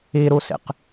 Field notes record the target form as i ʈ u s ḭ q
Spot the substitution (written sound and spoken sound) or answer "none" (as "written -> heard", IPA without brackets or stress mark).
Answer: ʈ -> ɾ